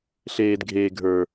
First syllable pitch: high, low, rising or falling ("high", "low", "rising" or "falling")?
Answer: low